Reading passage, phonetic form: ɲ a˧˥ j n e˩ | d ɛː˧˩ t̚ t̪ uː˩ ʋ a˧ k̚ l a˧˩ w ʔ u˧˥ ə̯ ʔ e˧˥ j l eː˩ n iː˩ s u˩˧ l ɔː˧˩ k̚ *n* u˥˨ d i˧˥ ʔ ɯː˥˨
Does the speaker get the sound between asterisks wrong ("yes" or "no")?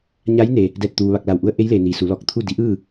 yes